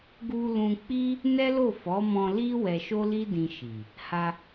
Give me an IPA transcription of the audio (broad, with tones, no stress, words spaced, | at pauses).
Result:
ɡu˧lũ˧k͡pi˦ | nɛ˦lo˦˨fɔ˨˦mɔ̃˧ li˦ wɛ˧ʃo˦li˦dĩ˧ ʃi˨ | ha˧